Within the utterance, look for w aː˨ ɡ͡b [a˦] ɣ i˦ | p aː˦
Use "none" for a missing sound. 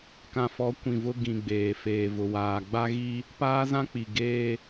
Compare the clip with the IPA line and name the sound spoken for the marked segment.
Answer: a˦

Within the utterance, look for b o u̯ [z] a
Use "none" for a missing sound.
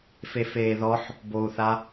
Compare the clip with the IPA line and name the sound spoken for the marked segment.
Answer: θ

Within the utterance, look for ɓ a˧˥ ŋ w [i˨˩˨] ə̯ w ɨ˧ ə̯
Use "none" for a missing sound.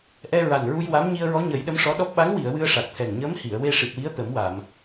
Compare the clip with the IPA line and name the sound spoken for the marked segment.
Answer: i˨˩˨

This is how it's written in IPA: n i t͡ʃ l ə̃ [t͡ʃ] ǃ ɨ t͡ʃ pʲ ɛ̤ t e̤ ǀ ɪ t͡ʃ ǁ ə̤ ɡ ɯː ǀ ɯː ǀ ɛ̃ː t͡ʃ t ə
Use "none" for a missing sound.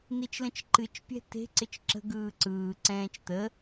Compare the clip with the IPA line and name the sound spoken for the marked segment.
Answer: t͡ʃ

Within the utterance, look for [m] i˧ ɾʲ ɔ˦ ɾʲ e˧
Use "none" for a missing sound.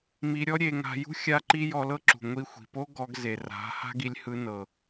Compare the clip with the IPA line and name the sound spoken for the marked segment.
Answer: m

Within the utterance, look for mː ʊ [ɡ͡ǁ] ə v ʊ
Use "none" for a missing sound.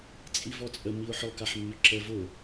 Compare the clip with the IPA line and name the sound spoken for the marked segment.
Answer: ǁ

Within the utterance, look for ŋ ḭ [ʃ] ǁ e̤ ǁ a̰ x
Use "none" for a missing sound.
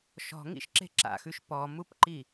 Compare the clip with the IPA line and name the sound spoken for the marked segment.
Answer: ʃ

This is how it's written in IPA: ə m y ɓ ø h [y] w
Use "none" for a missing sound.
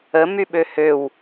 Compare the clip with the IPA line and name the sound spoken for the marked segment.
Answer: ø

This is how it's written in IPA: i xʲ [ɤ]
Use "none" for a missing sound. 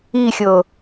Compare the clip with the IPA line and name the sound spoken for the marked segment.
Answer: ɤ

